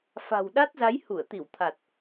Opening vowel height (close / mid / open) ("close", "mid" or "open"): open